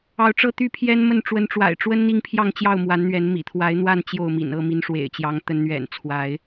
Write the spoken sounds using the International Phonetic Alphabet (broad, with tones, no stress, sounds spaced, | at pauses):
ɑ˨˦ ʊ̯ ʈ͡ʂ ɤ˦ t̪ y˦ pʰ j ɛ˦ n m ə˥˨ n ʈ͡ʂ w ə˨˦ n ʈ͡ʂ w a̰˨˩ ɪ̯ ʈ͡ʂ w ə˦ n n̪ i˦ ŋ pʰ j ɑ˥˨ ŋ t͡ɕ j ɑ˥˨ ʊ̯ m w a˨˦ n n̪ ɥ ɛ˨˦ n m ḭ˨˩ t̪ʰ w a˨˦ ɪ̯ n̪ w a˥˨ n t͡ɕ j o˥˨ ʊ̯ m ḭ˨˩ n ɤ˥˨ m i˨˦ n ʂ w ḛ˨˩ ɪ̯ t͡ɕ j ɑ˨˦ ŋ t̪ ə˨˦ n n̪ ɥ ɛ̰˨˩ n t͡sʰ w a˨˦ ɪ̯